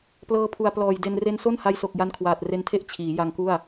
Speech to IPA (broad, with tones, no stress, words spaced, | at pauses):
plɤː˧ pʰu˨˩a̯plɔː˨˩jde˧n re˧nso˥˩nha˧jso˨˩k̚ ja˦˥nkʰwaː˨˩t̚re˦˥ntʰe˥˩ʔ t͡ɕʰiː˩˦ja˧ŋku˥˩a̯